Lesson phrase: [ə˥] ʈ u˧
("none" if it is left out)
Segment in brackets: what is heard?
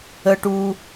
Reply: ə˧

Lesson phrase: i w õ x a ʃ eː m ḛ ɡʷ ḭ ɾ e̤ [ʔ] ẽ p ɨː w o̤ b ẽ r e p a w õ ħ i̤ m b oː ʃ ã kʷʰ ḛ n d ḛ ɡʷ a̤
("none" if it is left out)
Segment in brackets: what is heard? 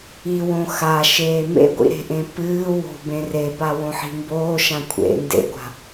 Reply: ʔ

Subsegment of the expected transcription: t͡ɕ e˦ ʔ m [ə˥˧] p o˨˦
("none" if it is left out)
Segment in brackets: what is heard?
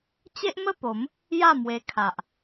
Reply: ə˥˧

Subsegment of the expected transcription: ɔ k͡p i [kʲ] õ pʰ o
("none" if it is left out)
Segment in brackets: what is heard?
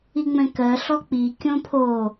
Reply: kʲ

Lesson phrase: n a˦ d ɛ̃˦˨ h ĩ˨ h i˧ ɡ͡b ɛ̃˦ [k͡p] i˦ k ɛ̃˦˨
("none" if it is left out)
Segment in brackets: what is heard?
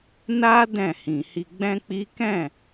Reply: k͡p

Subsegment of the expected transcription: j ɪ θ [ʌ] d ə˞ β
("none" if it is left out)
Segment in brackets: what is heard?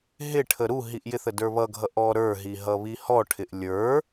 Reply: ə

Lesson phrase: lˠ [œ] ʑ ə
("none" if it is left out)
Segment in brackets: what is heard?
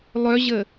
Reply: œ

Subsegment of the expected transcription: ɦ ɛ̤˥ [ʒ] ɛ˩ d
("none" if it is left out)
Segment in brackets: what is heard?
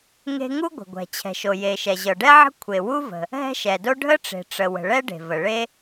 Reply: ʃ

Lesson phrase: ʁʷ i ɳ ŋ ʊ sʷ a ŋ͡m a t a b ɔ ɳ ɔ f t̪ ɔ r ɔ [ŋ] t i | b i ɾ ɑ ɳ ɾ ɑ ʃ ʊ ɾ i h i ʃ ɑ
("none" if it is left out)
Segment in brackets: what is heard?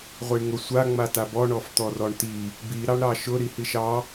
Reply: ɳ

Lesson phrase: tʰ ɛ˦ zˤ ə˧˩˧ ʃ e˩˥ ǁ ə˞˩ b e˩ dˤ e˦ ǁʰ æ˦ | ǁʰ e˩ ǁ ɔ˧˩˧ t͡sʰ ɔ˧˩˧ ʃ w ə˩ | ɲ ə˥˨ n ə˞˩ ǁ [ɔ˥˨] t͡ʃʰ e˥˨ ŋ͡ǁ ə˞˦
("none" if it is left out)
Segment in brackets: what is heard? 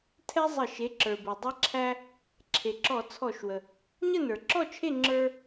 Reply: ɔ˥˨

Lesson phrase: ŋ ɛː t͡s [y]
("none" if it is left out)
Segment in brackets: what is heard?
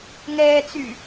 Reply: y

